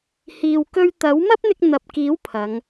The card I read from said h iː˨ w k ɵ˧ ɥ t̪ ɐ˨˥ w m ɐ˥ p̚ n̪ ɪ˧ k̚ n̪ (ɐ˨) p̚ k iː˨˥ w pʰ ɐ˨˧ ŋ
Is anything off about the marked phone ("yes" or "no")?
no